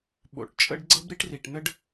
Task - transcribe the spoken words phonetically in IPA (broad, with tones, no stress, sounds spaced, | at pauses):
ɓ o̰˨ ʈ t͡ʃʼ ə̰˦ ɖ ɡ͡ǀ ɤ˦ b ɾ i˦ ʈ r i˨ ʈ n ə˦ ɖ